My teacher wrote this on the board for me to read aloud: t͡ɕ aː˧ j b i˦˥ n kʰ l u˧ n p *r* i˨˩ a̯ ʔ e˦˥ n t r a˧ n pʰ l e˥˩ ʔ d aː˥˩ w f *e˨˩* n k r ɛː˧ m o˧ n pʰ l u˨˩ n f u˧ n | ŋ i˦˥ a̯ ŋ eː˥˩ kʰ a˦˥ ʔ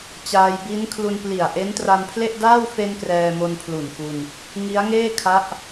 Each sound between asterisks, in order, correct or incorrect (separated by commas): incorrect, incorrect